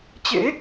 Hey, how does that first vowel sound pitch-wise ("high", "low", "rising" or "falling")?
rising